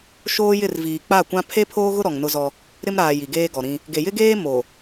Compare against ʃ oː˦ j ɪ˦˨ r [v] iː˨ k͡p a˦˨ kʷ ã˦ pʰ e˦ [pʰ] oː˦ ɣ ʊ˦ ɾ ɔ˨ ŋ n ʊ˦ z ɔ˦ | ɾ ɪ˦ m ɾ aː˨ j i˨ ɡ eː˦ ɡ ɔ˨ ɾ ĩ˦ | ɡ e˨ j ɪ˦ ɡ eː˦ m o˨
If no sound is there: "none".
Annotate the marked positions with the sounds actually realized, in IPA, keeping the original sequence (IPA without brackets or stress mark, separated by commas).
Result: v, pʰ